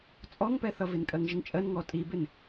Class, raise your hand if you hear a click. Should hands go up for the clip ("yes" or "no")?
no